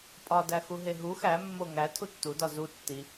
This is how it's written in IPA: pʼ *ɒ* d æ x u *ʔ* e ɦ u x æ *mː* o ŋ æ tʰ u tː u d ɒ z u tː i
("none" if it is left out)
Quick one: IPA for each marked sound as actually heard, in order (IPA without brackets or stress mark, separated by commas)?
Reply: ɒ, ɦ, mː